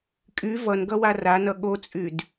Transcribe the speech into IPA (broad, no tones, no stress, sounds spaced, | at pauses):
kʼ y v ʌ n ɡ ʌ w a r a n ʌ ɠ o t͡sʼ y d